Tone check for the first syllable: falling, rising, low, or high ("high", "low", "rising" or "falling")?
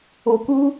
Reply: low